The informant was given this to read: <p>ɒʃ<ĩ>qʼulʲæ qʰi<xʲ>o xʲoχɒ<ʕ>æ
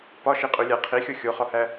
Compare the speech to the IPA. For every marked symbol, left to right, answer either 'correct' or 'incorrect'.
correct, incorrect, correct, incorrect

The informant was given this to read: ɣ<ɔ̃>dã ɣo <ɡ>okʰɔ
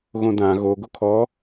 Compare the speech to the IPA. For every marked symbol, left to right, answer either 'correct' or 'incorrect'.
incorrect, correct

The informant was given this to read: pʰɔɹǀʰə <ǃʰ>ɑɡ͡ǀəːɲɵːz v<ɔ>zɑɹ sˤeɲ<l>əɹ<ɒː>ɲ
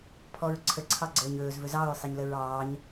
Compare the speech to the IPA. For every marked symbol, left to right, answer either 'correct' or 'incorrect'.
incorrect, incorrect, correct, incorrect

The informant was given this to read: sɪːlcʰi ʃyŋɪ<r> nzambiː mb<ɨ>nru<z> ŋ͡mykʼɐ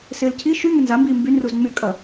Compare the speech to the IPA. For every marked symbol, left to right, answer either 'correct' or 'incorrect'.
incorrect, incorrect, correct

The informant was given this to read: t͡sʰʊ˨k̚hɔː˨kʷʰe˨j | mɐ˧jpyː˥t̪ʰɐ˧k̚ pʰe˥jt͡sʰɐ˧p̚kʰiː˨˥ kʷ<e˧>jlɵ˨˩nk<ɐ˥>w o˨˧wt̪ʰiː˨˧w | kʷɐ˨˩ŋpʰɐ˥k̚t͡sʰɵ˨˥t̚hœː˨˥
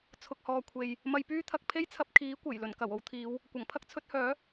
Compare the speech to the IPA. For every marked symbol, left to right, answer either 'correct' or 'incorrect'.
incorrect, incorrect

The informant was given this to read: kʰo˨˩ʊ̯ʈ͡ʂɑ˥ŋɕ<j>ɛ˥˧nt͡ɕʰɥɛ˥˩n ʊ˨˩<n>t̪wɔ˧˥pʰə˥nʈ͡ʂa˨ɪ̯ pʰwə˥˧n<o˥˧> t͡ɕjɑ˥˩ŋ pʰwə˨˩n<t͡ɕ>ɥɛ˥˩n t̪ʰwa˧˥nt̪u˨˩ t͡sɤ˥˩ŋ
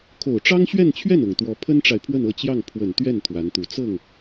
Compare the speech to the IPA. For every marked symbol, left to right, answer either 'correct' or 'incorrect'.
incorrect, incorrect, incorrect, incorrect

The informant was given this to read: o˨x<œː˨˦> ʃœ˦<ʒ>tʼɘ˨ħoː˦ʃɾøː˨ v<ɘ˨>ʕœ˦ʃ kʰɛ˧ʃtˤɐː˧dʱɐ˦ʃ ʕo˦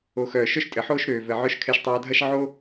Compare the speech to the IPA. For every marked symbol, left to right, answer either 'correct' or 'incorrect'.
incorrect, incorrect, correct

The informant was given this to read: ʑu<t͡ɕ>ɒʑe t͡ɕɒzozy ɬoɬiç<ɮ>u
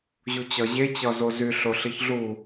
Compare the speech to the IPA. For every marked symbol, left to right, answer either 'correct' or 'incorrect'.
correct, correct

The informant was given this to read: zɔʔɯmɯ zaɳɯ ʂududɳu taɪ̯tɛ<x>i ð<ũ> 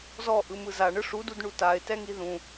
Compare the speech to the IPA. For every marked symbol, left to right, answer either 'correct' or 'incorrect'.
incorrect, correct

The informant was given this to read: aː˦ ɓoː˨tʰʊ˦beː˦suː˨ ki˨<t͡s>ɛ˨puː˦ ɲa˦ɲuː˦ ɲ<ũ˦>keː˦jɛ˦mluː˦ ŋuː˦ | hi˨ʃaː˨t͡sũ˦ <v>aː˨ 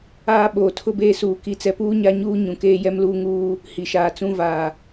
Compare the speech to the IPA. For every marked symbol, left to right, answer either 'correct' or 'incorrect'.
correct, incorrect, correct

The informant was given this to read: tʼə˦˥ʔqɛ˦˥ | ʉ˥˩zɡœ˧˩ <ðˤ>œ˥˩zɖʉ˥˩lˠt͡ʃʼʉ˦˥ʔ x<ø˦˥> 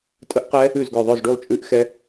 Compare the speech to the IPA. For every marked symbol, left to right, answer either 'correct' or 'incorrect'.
correct, incorrect

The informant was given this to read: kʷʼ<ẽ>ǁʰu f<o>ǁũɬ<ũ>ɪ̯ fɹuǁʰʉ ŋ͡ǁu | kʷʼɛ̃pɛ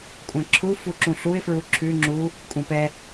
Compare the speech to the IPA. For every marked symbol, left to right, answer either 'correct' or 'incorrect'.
incorrect, incorrect, incorrect

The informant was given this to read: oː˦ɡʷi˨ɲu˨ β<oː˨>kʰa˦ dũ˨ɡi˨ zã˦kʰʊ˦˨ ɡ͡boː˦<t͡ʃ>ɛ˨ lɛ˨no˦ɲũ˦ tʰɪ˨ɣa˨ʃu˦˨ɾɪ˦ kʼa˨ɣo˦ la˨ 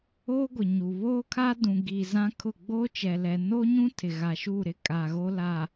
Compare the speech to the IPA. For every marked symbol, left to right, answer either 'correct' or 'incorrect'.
incorrect, correct

